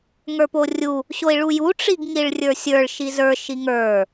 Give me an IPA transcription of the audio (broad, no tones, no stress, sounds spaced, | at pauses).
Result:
ŋ ə˞ p o rʲ u | ɕ o i̯ ɭ u j u ʈ͡ʂ i ɡ ŋ i ɭ rʲ ə˞ sʲ ə˞ ɭ ʃ i z ə˞ ʃ i ŋ ə˞